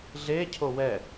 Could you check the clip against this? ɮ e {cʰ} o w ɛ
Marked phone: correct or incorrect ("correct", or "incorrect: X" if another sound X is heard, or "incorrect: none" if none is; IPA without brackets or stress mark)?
correct